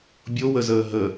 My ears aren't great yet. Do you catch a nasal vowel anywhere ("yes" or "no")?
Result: no